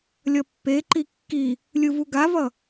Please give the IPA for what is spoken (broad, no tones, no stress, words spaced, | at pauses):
lʲʌpːeǃi kːi | lʲɯvuɡavʌ